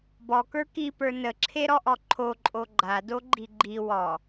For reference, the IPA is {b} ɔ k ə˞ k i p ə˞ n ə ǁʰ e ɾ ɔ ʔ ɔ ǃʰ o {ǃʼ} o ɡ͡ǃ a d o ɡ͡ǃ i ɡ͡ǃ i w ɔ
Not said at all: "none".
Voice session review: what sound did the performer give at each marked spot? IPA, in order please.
b, ǃʼ

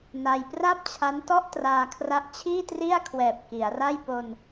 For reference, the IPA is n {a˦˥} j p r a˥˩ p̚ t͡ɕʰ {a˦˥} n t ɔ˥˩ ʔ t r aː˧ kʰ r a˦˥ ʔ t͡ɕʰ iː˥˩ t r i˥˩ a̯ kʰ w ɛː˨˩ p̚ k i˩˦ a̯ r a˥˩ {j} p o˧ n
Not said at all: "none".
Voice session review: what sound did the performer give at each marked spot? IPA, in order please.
a˧, a˦˥, j

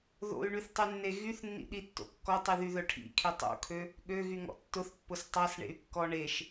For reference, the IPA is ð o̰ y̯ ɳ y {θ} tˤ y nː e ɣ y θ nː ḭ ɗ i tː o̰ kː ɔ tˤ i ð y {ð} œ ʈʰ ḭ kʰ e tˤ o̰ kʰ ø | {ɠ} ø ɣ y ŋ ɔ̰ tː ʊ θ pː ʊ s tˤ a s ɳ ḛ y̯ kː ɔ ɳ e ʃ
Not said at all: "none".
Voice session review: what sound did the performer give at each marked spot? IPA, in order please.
θ, ð, ɠ

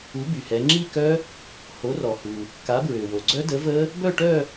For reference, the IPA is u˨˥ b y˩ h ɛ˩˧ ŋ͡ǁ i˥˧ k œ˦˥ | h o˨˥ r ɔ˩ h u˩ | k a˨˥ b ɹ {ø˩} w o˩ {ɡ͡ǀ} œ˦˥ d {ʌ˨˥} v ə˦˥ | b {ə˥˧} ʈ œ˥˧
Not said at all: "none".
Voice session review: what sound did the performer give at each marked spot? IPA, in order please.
ø˩, ɡ͡ǀ, ə˨˥, œ˥˧

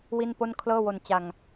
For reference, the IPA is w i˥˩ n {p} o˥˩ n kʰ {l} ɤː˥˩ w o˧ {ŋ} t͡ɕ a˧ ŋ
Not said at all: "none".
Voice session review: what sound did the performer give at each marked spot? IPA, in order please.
p, l, n

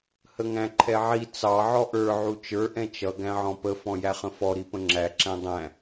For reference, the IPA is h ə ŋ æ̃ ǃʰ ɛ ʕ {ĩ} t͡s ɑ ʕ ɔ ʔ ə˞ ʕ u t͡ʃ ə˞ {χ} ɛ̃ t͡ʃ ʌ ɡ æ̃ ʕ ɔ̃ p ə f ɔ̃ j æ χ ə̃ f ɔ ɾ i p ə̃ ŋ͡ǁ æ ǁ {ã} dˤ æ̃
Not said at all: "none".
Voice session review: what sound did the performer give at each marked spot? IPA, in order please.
i, ʔ, æ̃

